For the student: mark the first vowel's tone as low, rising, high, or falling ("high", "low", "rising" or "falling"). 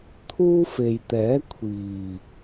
high